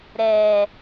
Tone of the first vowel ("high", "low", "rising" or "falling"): low